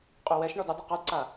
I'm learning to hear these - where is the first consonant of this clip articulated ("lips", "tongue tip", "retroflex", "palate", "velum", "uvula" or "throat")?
uvula